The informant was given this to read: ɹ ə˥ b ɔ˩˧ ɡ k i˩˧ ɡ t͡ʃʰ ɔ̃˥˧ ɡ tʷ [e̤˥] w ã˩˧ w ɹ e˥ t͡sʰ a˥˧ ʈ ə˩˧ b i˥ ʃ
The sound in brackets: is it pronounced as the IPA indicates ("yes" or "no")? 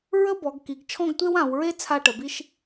no